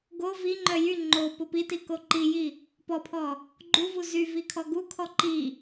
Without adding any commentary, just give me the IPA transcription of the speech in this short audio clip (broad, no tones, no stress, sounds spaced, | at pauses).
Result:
ɡ o v i ŋ͡ǃ œ j y ŋ͡ǃ o p o p i t i k o ǃ i j i | p ɔ pʰ ɔ | ɡ͡ǃ u v u z y v i kʰ ɔ ɡ u kʰ ɔ ǃ i